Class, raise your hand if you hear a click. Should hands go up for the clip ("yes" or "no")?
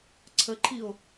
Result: yes